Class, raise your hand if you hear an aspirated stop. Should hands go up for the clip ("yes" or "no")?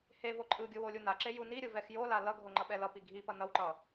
no